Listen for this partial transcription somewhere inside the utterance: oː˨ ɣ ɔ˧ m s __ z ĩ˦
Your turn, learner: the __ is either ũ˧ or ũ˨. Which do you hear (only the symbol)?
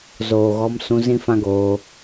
ũ˧